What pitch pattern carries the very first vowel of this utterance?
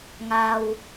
low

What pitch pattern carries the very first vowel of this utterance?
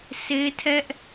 high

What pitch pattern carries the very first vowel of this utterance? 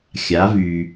rising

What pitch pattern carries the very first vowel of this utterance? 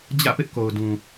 falling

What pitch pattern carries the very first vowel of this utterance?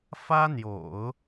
high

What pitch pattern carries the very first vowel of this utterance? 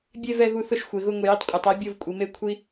falling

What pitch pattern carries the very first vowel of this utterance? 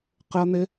high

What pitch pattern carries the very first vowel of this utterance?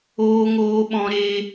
high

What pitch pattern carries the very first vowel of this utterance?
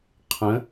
rising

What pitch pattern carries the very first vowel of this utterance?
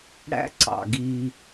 high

